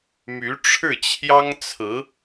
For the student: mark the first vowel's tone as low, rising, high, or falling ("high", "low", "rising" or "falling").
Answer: rising